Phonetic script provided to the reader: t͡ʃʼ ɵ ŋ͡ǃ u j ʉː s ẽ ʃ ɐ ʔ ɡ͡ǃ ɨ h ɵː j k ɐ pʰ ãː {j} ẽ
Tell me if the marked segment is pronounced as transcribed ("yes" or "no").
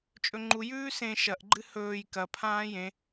yes